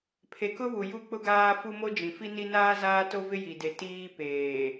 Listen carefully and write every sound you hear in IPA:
pʰ e˨ k ʊ˦ β u˨ j u˦ k͡p ʊ˦ ɡ aː˦ f u˦ m o˦ d͡ʒ ĩ˨ f i˦ n i˦ n aː˦ z aː˦ t o˦ v ɪ˦ j i˨ d e˨ t iː˦ p eː˨

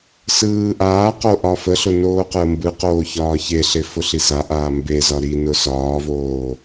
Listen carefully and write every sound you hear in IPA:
s ɯː ʔ aː q o ʔ ɒ f ə ɬ ʊ n oː q əː m b ɯ q oː ç ɒː ç e ɬ e f ʊ ɬ i s a ʔ aː m b e z ɒ ɾ i n ʊ s ɒː v oː

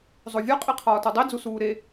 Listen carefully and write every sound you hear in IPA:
zˤ o vʲ ɒ qʼ i qʰ ɒː t u dˤ i d͡z u s uː ɾ e

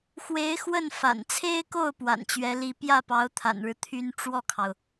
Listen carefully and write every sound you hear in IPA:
x w e˧˥ ɪ̯ x w ə˥˩ n f a̰˨˩ n t͡sʰ e˥ ɪ̯ k o˥˩ ʊ̯ p w a̰˨˩ n t͡ɕ ɥ ɛ˧˥ l i˧˥ p j ä˥˩ p ɑ˧˥ ʊ̯ t̪ʰ a̰˨˩ n ɻ ɻ̩˦ t̪ʰ y˧˥ n ʈ͡ʂ w ɔ˥˩ kʰ ɑ˩ ʊ̯

